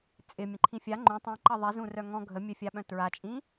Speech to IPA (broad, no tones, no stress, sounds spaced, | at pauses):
t͡sʼ ɪ mʲ ə̃ ǃʰ ĩ fʲ a ŋ͡ǃ ũ tˤ ĩ ǃ ɐ ðˤ i z ũ r œ ŋ ɔ̃ ɡʱ ə mʲ œ fʲ a ɓ œ̃ t ɹ a t͡ʃʼ ĩ